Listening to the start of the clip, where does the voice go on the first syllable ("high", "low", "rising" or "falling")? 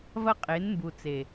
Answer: high